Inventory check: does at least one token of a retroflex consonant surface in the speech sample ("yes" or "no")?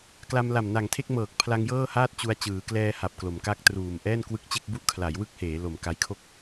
no